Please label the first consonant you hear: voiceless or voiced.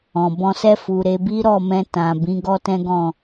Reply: voiced